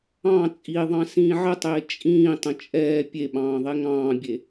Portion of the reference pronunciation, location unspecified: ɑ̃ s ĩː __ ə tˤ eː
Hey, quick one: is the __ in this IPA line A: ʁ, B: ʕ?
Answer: B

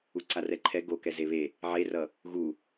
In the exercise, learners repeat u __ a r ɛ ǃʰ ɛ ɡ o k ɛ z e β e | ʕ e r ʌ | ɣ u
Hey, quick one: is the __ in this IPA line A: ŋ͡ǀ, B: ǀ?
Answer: B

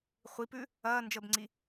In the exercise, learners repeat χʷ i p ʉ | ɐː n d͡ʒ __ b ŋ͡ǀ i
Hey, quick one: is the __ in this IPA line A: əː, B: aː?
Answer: A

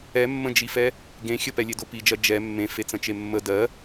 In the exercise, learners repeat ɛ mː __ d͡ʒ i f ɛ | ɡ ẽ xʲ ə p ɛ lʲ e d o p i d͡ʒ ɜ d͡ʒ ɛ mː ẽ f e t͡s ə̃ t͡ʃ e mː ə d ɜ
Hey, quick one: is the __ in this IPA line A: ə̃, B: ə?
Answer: A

